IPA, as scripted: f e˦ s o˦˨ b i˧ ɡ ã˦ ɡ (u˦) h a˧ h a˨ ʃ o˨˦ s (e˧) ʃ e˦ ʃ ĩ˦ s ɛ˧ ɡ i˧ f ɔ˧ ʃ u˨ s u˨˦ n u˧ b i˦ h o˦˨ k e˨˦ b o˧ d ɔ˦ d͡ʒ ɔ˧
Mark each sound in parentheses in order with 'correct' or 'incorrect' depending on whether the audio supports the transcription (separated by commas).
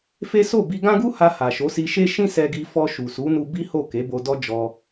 correct, incorrect